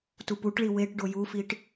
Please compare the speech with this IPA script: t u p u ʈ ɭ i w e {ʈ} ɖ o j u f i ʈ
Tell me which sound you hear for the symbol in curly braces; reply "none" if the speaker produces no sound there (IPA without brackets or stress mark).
ʈ